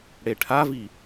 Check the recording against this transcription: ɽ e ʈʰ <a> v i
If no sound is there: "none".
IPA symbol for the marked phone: a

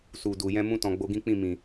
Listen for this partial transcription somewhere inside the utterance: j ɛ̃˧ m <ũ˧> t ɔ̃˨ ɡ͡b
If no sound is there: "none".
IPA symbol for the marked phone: ũ˧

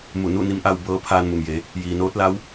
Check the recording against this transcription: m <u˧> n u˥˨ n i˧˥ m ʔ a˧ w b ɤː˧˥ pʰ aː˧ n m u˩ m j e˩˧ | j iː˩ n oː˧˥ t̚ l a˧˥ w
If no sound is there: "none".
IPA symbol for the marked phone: u˧˩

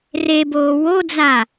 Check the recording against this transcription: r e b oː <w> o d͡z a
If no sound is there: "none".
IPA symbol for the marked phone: w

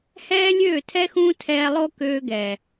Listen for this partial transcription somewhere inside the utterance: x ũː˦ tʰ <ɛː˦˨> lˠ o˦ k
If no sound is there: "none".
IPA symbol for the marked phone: ɛː˧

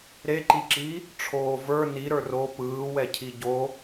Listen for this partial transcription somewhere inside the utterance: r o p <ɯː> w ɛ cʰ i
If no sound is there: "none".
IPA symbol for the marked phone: ɯː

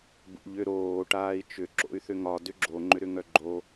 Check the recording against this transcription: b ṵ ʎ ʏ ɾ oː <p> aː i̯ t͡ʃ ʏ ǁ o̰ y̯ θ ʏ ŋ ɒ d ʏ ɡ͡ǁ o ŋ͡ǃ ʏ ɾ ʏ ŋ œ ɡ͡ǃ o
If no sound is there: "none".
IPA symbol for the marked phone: ʈ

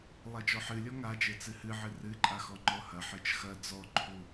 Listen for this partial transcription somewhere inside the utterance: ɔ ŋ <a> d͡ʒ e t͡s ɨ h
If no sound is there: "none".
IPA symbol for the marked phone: a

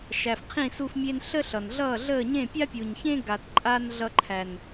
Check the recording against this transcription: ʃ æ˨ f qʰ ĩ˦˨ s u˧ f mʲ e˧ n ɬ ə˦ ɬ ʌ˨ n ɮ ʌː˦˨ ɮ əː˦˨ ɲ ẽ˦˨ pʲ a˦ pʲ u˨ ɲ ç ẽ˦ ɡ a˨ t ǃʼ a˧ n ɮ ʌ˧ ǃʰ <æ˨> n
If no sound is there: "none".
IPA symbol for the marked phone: æ˨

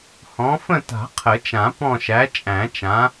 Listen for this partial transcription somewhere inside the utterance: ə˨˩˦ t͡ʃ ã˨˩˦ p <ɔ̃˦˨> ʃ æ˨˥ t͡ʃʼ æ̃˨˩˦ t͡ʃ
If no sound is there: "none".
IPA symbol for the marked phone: ɔ̃˦˨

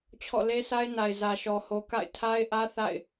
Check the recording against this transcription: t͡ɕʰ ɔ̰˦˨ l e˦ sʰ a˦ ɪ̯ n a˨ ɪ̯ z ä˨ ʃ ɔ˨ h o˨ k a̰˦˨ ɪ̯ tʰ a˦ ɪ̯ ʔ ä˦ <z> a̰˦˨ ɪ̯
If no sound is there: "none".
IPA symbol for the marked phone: θ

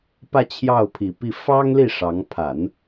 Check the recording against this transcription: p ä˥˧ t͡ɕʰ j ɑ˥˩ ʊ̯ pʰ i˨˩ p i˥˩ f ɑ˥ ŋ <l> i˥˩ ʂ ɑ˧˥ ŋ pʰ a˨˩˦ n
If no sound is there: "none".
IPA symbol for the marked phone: l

